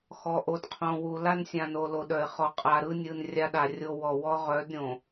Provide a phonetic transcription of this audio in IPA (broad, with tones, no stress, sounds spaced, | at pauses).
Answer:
x ɔ˨ ʔ o˨ d qʰ õ˨ w u˨ l a˦ n sʲ ã˨ n o˨ l o˨ ɗ œ˨ ɪ̯ χ ɔ˨ qʼ a˨ ɾ ɯ˦ nʲ ɯ˨ n rʲ a˦ ɗ a˨ rʲ o˦ w ɔ˨ w ɔ˦ ʁ œ˨˦ d ɾʲ õ˨